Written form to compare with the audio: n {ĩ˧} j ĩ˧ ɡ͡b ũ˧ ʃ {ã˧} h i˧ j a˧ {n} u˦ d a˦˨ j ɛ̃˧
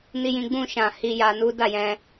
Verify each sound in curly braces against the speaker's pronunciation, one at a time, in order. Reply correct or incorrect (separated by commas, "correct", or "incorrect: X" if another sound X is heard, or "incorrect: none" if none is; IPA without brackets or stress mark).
incorrect: i˧, incorrect: ã˨, correct